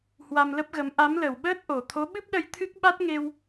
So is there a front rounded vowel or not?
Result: no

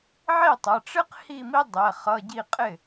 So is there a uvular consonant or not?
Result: yes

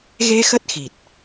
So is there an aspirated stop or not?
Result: no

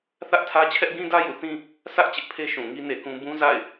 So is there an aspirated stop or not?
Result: yes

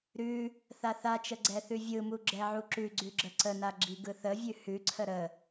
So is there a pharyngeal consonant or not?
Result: yes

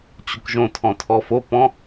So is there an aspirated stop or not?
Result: yes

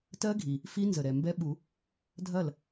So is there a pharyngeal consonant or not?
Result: no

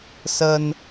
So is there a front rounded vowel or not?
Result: no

